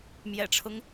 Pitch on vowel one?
low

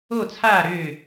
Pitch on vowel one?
falling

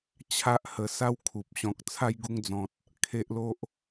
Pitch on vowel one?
high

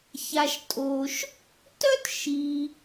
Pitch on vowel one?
low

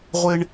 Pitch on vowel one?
high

